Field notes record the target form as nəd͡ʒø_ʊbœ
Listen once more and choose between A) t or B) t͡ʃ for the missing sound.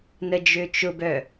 B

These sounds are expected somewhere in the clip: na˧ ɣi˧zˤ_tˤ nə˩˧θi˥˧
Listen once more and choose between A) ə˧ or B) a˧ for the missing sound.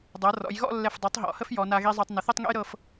B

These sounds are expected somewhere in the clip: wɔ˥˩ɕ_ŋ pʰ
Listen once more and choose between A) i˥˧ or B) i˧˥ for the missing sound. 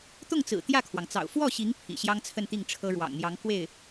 B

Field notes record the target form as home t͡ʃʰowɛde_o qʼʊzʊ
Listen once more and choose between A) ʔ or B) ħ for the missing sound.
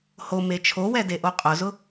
A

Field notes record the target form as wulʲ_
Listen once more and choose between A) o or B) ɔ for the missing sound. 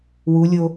A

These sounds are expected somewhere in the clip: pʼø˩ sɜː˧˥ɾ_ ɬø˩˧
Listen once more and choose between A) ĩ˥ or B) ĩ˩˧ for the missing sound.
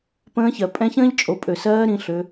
B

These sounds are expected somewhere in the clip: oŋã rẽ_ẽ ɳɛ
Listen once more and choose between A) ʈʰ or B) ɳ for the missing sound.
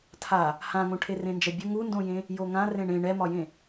B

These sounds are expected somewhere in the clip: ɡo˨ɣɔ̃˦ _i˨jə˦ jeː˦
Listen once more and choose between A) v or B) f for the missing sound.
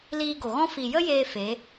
B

